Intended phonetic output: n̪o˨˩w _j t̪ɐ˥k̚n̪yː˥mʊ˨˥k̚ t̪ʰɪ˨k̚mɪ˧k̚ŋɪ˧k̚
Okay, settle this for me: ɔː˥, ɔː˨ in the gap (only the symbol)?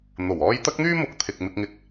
ɔː˥